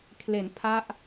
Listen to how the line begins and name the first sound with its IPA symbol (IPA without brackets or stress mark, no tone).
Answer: kʰ